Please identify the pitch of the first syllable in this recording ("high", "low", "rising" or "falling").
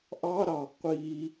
high